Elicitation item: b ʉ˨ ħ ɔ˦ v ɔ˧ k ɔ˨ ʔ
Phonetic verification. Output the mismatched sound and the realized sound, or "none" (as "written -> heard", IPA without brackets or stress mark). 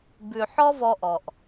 k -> ʔ